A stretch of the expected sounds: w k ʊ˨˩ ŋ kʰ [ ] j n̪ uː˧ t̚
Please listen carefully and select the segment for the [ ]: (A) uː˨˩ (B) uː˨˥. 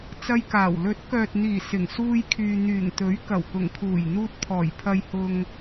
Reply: A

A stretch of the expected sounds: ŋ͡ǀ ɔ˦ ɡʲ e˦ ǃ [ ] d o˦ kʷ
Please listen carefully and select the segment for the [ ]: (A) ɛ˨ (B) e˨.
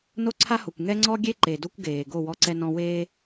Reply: B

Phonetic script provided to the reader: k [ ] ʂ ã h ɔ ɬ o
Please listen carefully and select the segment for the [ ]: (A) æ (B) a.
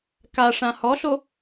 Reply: B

